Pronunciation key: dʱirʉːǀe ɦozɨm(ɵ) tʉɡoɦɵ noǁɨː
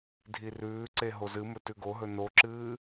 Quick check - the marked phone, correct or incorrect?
correct